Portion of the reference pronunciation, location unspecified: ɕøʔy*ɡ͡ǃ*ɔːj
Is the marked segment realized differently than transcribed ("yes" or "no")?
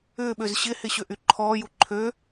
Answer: yes